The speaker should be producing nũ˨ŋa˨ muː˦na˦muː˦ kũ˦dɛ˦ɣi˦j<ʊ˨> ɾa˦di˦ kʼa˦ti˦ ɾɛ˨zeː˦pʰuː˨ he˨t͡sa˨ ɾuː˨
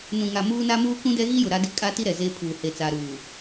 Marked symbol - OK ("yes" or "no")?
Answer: yes